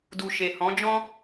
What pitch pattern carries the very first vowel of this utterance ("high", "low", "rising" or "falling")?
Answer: low